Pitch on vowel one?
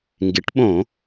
rising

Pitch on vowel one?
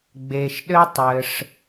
low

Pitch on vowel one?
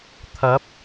rising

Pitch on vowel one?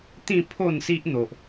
falling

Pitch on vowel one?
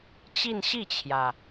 falling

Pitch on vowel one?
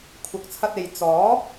rising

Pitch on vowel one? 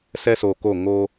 high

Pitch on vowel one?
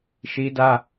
high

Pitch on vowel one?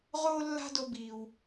high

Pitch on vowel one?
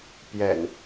low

